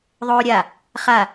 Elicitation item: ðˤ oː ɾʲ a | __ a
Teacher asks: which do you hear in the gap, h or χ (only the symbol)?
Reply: χ